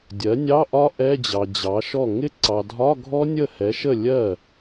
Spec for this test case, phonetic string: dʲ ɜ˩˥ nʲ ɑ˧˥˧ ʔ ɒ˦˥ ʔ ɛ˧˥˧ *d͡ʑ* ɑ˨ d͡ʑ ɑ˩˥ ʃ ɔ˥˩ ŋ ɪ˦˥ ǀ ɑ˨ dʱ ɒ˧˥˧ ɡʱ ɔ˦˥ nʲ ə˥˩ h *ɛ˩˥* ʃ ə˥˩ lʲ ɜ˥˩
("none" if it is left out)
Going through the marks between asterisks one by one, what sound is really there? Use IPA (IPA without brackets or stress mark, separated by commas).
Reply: d͡ʑ, ɛ˩˥